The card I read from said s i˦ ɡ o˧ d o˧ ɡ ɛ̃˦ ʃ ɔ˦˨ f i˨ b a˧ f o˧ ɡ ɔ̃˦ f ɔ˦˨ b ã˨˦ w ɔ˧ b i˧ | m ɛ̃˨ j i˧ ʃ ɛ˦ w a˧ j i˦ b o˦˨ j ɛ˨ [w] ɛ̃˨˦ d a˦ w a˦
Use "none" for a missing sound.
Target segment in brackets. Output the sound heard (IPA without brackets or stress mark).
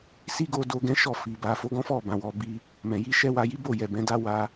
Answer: b